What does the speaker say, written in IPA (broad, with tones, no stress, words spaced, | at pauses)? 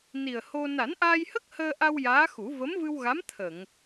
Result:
ni˨˩ə̯ho˧ na˨˩˦nʔaː˧jhə˦˥k̚ həː˧ʔa˧w jaː˧˥xu˨˩˦ və˧˥mvɨ˧wɣa˧˥m t̪ʰə˨˩˨ŋ